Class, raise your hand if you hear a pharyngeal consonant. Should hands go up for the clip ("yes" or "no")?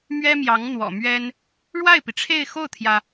no